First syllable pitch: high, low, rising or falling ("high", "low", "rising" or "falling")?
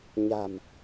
low